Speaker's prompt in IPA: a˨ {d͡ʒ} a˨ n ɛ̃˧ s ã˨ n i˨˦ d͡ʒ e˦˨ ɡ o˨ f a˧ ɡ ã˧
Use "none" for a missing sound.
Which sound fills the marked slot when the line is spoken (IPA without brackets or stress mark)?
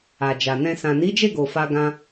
d͡ʒ